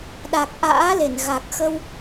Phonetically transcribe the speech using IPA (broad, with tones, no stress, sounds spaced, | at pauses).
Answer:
ɗ a˨˩ k̚ ʔ a̰ː˧˥ l e˧˩ n ɣ a˨˩ k̚ x ə˧ w